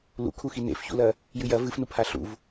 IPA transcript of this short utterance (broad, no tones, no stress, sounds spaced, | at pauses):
l ṵ kʰ u x i n ḛ f ç ṵ l ɐ | j ʉ j ɐ v ɨ f n u pʰ a ɬ ṵ v